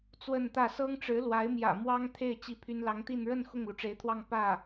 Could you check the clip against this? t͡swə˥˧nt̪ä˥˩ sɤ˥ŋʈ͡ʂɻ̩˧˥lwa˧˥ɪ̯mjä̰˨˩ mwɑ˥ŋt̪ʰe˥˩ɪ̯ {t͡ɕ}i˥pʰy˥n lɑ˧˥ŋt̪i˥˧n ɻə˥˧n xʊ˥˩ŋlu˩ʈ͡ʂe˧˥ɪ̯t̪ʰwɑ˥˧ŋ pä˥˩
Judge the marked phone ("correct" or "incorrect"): correct